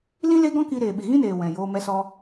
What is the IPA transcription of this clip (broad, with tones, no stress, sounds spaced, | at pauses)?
l ĩ˦ l e˦ ɡ ɔ̃˦ k i˧ ɾ eː˨ ɓ i˨ ɣ ĩ˦ n eː˨ w ɛ̃˨ j oː˧ m ɛ˧ s ɔ˧